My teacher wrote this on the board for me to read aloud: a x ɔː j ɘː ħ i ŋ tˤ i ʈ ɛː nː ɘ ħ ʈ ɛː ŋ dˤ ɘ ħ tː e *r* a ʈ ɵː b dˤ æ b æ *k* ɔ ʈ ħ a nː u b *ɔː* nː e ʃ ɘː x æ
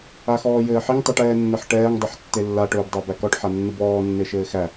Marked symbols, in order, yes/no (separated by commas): no, yes, yes